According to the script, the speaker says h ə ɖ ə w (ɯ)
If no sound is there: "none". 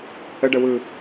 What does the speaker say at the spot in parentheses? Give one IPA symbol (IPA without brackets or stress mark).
ɯ